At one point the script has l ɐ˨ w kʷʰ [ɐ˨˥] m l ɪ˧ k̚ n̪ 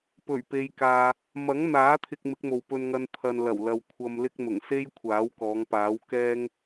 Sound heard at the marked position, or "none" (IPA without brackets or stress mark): ɐ˨